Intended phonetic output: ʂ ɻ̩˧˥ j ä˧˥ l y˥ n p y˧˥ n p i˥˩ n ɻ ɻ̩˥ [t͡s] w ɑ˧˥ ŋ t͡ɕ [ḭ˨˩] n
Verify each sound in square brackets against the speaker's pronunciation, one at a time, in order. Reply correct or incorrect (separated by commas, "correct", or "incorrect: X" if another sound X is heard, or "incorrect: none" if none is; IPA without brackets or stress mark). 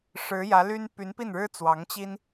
correct, incorrect: i˥